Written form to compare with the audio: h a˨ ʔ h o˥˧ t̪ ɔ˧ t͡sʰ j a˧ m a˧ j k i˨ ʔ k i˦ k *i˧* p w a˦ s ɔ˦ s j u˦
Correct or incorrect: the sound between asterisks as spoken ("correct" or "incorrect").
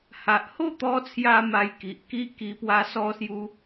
correct